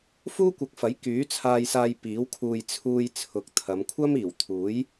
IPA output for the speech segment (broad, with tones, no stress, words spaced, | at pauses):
fuː˥kʷɐ˨˥k̚fɐ˨˥j kyː˨˥t͡sʰaː˧jsaː˧j piː˨˥wkʰuː˧j t͡sʰuː˧j t͡sʰʊ˨k̚t̪ʰɐ˨˧m kʷʰɐ˥m iː˨˩wt̪ʰuː˨˥j